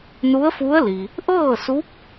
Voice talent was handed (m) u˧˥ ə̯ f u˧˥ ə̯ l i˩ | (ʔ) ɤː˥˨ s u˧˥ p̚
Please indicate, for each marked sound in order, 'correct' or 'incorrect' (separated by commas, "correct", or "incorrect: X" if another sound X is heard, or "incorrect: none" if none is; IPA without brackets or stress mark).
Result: incorrect: n, correct